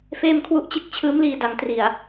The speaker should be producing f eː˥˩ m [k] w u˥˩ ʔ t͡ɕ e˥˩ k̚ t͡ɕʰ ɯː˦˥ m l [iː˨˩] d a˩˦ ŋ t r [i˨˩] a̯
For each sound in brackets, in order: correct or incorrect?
incorrect: kʰ, incorrect: iː˧, correct

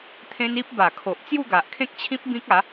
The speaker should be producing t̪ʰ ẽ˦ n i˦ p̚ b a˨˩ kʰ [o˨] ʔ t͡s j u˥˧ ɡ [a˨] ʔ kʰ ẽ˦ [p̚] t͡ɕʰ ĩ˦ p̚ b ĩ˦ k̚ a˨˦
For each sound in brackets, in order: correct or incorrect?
correct, correct, incorrect: k̚

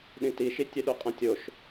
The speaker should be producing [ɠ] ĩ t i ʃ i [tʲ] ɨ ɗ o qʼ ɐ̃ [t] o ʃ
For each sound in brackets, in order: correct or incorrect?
incorrect: ɗ, correct, incorrect: tʲ

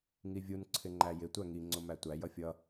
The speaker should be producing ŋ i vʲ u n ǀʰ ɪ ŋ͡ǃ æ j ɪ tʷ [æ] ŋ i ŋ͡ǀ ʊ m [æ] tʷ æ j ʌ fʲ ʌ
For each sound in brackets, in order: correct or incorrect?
correct, correct

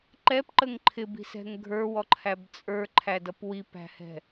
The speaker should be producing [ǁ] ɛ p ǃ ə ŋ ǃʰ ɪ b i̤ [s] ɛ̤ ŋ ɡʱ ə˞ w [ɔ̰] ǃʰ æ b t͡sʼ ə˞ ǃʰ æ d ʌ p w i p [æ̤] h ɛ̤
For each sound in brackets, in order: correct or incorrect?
incorrect: ǃ, correct, incorrect: ɔ, correct

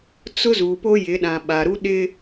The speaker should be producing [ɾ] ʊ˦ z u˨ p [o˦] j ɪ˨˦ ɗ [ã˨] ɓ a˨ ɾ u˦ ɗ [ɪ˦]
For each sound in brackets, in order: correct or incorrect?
incorrect: t͡s, correct, correct, correct

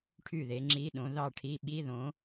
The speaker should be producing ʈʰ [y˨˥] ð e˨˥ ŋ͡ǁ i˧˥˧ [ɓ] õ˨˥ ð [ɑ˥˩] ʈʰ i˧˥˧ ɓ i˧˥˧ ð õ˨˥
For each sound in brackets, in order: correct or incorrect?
incorrect: y˥˩, incorrect: ɗ, correct

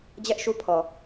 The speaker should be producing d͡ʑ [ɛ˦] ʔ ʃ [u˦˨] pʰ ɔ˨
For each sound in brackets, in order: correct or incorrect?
correct, incorrect: u˦

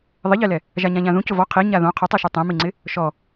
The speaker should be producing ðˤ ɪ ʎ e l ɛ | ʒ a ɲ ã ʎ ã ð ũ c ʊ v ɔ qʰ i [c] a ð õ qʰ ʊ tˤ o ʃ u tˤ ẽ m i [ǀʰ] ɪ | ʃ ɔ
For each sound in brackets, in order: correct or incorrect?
incorrect: ɲ, incorrect: ŋ͡ǀ

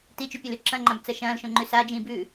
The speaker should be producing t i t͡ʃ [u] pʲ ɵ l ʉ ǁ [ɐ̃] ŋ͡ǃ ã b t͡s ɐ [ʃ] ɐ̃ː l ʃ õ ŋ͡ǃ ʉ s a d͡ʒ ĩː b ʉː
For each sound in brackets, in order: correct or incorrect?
incorrect: ʉ, correct, correct

